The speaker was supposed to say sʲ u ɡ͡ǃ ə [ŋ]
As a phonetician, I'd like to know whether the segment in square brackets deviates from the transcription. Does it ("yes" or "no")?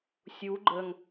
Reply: no